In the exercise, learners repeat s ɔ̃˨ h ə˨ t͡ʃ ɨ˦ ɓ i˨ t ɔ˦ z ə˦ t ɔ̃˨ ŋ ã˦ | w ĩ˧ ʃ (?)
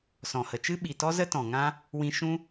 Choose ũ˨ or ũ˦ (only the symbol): ũ˦